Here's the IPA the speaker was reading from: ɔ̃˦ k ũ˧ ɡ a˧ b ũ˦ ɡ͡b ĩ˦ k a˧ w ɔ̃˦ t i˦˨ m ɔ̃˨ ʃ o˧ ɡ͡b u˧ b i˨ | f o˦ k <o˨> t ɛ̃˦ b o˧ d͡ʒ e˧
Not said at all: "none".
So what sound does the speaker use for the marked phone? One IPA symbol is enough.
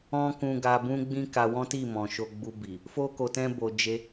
o˧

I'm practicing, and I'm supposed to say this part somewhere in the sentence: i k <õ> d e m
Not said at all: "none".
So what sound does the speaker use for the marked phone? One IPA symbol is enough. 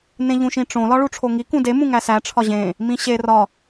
ũ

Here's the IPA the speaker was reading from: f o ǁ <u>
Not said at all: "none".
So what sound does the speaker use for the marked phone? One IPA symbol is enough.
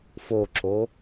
o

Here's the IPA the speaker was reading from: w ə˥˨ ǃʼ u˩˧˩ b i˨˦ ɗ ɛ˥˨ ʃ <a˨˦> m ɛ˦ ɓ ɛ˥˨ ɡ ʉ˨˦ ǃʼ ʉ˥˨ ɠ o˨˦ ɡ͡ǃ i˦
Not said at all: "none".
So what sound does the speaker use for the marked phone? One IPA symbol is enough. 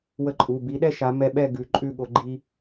a˨˦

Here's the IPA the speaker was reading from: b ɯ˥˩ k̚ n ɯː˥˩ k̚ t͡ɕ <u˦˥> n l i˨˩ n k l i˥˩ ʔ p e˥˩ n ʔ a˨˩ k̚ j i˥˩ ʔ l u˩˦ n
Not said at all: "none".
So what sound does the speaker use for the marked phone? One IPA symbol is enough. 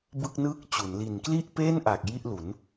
u˩˦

